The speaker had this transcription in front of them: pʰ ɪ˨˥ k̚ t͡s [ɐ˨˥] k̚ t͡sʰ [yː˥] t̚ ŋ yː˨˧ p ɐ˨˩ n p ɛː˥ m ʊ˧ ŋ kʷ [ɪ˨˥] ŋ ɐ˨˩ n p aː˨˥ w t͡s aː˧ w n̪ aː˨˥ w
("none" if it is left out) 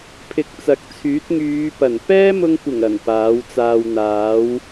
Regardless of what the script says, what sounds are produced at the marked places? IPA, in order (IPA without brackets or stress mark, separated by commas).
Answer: ɐ˨˥, yː˨˥, ɪ˨˩